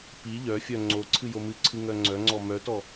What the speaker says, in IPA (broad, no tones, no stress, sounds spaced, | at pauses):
p i ʎ œ fʲ œ ŋ͡ǀ o ǀʰ ɨ j o m ɨ ǀʰ ɨ ŋ œ ŋ͡ǀ œ ŋ͡ǀ ɔ m œ t ɔ